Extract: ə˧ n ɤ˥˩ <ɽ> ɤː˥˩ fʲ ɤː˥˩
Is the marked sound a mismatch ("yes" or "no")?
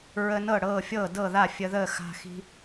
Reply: no